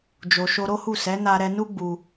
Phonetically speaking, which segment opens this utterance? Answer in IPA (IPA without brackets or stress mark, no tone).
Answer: d͡ʒ